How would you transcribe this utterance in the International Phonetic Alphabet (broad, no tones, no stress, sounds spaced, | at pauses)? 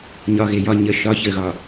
ɲ ɒ ɣ e j ɒ ɲ ə ʃ ɒ ç ə ɣ ɒ